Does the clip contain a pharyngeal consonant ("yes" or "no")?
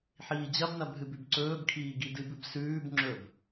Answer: yes